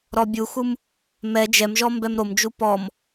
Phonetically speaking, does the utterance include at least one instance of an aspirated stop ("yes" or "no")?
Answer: no